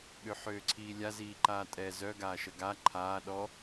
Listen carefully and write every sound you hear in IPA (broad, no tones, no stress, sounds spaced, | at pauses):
ɠ ø ħ øː ǀʰ iː lʲ a z iː ǃ aː tʼ ɛ z œ ɡ aː ʃ ə ɡ a ǃʰ aː ɗ ɔ